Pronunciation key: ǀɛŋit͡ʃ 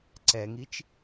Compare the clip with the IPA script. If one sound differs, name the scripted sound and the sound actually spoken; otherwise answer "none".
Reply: none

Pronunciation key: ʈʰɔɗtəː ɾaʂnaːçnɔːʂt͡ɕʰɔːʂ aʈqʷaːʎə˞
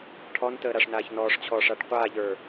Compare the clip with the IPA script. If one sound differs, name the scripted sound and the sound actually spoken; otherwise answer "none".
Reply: ɗ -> n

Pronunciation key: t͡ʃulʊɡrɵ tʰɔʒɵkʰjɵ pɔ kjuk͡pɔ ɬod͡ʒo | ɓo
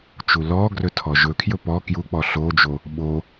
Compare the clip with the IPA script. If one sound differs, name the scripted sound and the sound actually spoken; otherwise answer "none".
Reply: ʊ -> ɔ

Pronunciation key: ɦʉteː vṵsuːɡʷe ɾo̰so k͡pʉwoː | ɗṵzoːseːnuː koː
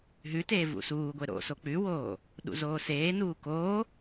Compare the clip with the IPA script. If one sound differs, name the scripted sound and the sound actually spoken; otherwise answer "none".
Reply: none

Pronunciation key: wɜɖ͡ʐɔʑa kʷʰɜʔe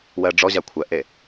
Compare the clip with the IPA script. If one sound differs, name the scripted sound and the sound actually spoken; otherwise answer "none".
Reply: none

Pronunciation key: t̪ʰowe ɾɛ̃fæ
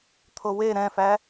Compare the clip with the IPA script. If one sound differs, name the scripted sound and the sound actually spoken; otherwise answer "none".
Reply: none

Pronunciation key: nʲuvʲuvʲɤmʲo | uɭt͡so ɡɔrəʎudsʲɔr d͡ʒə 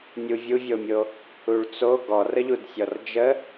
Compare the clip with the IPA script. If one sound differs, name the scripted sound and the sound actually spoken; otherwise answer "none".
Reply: ɤ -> o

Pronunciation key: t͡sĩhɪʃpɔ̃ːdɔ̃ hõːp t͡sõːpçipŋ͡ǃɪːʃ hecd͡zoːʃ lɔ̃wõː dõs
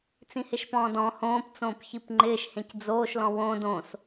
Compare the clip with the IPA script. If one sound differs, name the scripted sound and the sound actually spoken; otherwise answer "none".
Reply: e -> ẽ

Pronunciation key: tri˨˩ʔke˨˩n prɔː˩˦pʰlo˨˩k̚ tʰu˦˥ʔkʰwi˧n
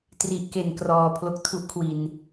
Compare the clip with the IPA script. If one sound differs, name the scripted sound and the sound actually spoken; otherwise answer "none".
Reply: p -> k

